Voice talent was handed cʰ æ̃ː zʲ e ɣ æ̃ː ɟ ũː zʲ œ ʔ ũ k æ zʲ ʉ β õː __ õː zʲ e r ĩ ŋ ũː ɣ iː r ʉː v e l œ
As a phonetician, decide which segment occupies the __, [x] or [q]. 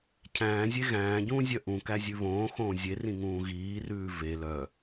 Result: x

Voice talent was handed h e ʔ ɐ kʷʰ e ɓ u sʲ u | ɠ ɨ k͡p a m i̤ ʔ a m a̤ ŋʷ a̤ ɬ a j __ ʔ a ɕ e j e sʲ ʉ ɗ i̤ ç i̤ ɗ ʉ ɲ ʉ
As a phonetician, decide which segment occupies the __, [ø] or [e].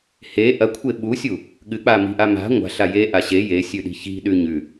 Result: e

